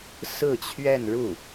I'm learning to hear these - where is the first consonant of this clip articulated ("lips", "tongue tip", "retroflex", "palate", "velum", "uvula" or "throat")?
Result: tongue tip